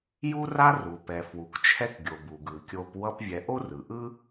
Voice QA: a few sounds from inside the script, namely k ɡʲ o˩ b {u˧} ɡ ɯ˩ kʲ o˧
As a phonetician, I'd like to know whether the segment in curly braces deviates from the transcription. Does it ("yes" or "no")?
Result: yes